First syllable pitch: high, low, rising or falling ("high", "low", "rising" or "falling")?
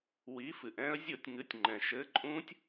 rising